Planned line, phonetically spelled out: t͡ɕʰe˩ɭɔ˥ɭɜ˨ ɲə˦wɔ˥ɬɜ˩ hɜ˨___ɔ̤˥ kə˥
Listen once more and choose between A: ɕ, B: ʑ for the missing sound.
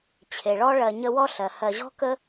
B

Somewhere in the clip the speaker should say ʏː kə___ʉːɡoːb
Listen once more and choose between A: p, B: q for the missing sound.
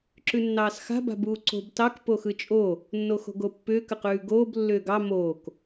B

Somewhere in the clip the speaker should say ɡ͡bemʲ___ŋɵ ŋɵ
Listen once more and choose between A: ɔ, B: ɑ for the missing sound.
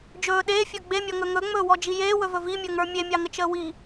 A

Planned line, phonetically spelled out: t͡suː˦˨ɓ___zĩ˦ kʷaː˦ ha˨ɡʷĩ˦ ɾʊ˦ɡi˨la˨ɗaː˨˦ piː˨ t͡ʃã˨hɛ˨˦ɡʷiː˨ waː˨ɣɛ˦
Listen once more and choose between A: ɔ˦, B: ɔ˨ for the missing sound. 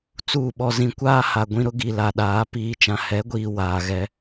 A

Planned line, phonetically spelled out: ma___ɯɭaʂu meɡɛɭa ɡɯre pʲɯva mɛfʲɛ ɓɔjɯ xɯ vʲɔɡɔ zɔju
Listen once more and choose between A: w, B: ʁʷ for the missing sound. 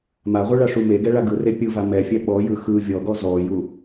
B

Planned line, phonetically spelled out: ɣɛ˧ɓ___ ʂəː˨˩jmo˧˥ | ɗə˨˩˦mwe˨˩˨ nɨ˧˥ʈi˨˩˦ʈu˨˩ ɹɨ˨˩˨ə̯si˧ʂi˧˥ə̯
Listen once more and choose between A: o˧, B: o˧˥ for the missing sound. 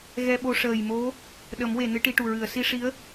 A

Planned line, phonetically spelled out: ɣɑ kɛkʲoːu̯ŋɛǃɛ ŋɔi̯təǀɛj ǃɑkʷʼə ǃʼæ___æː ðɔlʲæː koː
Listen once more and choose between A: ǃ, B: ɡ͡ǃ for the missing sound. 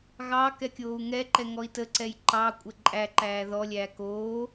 A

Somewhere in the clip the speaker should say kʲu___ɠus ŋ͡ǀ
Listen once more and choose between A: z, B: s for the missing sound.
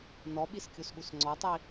B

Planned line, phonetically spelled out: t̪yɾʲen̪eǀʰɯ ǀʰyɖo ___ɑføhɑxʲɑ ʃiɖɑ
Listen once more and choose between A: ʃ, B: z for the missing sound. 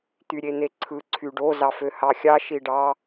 B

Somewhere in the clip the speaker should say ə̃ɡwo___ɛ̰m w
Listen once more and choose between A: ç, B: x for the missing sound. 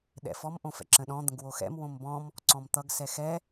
B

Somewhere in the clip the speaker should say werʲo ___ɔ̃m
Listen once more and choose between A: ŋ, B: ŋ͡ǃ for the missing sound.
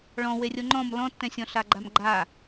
B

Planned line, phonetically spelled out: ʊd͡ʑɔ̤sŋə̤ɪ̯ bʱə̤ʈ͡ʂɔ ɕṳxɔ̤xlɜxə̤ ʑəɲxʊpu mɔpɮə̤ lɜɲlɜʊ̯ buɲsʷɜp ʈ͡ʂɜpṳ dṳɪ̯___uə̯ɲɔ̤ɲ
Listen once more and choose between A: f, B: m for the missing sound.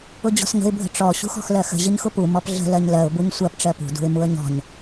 B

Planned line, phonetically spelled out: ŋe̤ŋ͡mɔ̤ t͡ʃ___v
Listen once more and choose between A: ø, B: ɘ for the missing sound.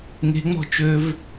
A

